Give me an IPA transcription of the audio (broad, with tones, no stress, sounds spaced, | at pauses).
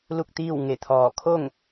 l u˥˨ k̚ t̪ iː˥˨ w ŋ e˧˩ t̪ʰ ɔː˧˩ kʰ o˥˨ ŋ